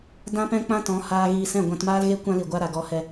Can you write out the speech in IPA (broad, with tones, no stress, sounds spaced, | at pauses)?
d ã˦ p ɛ̃˦ k͡p ã˦ t ɔ̃˨˦ h aː˧ ɣ iː˧ s ɛ̃˦˨ ɡʷ ã˧ t m aː˦ l ɣ e˦ kʷ ã˦ l i˨ ɡʷ a˦ ɾ a˨ ɡ ɔ˧ h ɛ˧